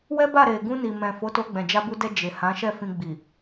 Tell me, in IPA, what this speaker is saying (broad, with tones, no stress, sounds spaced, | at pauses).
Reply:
w ɛ˦ b a˦˨ ɾ e˨ ɡ ũ˧ n i˨ m ɛ̃˨ f o˨˦ t o˧ ɡ͡b ɛ̃˨ d͡ʒ a˧ b u˧ d ɛ˧ d͡ʒ e˨ h ã˨˦ ʃ ɛ˦˨ f ĩ˨ ɡ͡b i˨